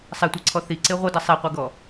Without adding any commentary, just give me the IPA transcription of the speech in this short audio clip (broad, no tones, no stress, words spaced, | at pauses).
sˤɛtʷɛǀʰɔ θiǀe ʁʷʌdʌ sˤeqʷɛɡɔ